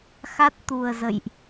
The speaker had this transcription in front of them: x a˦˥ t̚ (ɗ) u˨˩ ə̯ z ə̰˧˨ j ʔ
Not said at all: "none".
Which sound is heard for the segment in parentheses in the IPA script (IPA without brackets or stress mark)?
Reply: t̪